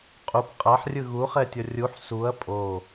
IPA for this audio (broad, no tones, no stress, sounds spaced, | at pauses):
qʼ u p qʼ a ħ rʲ ɯ ɣ u χ ɛ tʲ ʌ rʲ u ħ s u ɐ̯ pʼ o